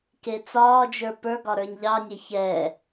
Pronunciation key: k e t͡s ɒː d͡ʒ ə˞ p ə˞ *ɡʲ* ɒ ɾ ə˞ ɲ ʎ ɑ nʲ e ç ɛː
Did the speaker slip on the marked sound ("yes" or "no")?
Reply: yes